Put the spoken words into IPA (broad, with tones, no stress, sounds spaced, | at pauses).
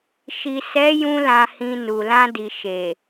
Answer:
ʃ i˨ s ɛ˨˦ j ũ˧ l ã˧ h ĩ˧ n u˨ l ã˧ d i˨ ʃ e˨